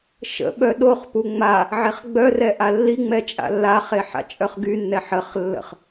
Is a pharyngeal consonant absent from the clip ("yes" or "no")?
no